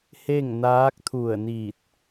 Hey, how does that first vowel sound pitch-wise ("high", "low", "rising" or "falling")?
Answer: falling